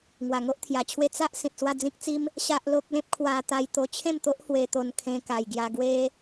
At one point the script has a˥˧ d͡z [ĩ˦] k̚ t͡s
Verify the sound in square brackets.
correct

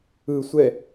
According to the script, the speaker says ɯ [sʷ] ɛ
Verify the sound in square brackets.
correct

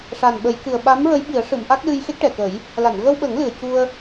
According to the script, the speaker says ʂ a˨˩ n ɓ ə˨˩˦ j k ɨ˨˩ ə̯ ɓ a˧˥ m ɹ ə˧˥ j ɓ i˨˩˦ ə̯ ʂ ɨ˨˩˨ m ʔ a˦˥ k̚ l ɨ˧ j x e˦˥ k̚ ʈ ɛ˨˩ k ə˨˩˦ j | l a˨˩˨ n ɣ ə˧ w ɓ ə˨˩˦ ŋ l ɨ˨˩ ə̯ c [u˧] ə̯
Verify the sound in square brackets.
correct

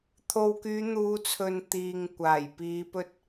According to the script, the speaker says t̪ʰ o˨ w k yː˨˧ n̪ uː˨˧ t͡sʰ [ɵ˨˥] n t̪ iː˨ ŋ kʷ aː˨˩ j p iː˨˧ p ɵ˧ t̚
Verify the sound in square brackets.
incorrect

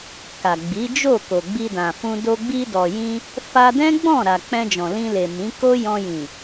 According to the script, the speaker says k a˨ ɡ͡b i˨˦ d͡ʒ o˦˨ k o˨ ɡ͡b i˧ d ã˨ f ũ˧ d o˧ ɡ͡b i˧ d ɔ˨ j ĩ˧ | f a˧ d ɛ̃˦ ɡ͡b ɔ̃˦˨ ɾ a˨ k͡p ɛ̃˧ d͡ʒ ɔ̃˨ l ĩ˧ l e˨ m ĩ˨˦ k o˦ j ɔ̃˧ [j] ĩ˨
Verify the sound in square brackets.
correct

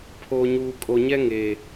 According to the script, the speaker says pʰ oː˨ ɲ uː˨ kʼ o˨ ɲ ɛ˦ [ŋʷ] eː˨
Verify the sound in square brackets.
incorrect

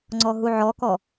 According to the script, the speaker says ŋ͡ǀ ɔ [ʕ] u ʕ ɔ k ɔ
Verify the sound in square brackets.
incorrect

